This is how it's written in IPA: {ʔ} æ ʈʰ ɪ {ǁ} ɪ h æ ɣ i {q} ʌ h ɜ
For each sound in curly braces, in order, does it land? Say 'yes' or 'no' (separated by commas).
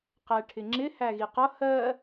no, no, yes